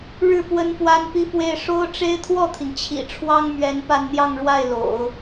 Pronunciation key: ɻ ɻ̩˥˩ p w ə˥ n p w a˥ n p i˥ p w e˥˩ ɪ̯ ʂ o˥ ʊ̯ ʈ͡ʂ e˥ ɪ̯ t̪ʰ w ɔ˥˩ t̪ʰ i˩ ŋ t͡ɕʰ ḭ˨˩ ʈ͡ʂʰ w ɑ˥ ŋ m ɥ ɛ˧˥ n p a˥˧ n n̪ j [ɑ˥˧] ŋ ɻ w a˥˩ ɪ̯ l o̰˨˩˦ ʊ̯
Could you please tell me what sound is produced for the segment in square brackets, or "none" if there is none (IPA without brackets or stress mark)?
ɑ˥˧